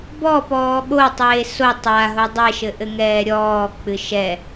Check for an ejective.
absent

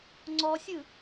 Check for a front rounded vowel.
absent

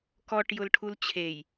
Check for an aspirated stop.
present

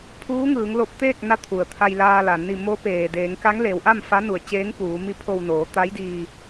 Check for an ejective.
absent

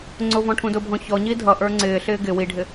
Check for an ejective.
absent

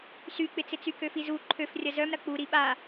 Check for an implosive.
present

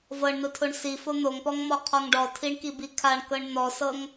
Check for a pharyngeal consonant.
absent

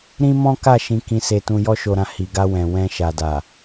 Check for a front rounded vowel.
absent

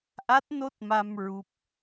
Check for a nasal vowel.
absent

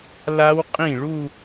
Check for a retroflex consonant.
present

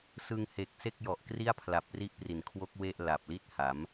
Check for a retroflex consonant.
absent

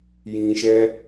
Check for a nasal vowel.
present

